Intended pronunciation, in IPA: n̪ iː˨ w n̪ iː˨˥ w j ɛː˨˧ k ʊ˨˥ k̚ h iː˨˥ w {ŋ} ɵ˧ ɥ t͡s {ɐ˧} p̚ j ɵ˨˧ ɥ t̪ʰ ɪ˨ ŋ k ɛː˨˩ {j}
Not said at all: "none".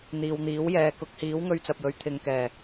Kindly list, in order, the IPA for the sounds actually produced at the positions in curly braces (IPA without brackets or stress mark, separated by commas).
ŋ, ɐ˨, none